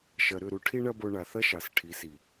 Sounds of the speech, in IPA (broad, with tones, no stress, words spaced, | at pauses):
ʃɐ˨ɾʏ˦˨ɾu˧ ʈʰi˦ɳɐ˦bo˧ ɳa˨ θɐ˦ʃɑ˨sʈʰi˨˦si˨